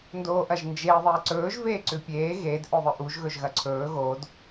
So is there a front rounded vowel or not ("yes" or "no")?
no